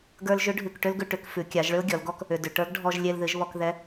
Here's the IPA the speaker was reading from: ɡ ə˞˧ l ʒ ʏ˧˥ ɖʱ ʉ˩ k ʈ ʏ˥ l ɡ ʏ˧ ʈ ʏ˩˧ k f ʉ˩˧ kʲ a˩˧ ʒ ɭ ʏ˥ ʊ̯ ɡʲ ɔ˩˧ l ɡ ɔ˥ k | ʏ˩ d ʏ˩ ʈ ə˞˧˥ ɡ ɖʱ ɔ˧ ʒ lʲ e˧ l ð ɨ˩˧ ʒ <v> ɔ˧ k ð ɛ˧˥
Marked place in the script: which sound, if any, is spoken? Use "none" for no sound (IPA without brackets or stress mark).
β